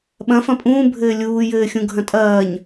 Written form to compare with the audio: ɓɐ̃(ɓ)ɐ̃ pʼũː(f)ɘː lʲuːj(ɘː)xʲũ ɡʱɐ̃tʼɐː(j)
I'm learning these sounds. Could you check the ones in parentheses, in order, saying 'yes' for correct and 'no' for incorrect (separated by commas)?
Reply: no, no, yes, no